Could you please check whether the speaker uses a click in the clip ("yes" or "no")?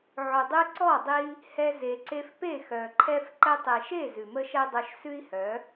yes